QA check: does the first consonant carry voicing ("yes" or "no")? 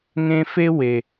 yes